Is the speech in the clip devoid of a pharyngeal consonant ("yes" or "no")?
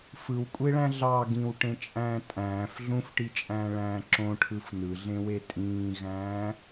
yes